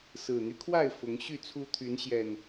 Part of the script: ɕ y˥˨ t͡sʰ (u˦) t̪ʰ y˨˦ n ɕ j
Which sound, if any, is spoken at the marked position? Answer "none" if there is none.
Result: u˦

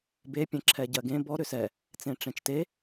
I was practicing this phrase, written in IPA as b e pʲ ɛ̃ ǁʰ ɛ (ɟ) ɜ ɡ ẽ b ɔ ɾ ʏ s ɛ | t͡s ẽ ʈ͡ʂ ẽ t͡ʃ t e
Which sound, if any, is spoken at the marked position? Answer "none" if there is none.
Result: ɟ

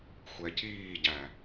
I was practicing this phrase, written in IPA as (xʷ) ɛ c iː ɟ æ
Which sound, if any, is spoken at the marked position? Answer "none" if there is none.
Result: xʷ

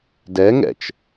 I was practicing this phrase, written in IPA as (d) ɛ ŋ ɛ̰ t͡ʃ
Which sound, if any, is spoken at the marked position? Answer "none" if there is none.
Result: d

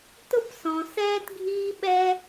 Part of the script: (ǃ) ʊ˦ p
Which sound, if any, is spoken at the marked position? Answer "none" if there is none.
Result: t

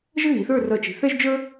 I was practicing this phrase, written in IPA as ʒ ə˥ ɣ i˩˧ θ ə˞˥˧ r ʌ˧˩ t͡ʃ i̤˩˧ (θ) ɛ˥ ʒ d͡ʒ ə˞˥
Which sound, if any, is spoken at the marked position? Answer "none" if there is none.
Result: θ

